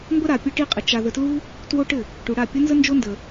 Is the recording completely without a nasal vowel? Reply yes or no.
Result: yes